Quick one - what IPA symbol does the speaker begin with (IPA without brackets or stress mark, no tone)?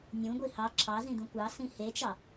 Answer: nʲ